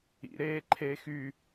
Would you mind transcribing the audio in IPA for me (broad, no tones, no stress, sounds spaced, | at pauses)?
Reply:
ḭ ɾ eː ǃʰ eː x y